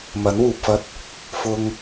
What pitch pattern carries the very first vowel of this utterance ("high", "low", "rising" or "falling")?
rising